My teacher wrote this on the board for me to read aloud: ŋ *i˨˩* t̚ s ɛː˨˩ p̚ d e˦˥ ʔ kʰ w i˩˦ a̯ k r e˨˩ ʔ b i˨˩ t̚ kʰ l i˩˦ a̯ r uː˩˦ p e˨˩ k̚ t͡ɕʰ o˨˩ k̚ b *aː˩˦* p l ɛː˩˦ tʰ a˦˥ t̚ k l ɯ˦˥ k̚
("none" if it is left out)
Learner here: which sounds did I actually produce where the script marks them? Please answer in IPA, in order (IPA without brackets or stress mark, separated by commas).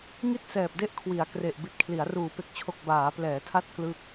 i˥˩, aː˩˦